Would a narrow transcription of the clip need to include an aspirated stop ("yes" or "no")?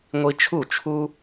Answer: yes